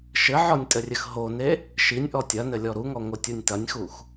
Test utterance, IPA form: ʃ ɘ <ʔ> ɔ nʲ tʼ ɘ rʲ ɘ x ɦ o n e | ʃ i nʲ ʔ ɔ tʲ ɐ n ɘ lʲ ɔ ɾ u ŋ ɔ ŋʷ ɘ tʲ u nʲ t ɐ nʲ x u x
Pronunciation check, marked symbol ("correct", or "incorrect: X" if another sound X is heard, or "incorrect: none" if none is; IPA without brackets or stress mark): incorrect: ʕ